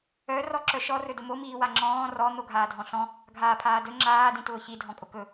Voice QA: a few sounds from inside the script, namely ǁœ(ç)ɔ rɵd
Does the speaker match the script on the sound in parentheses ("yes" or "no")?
no